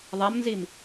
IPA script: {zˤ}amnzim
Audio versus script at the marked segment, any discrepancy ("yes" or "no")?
yes